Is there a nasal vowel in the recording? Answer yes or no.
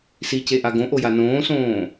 yes